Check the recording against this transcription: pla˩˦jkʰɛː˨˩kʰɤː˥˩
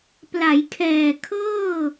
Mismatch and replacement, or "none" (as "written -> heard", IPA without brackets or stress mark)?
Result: none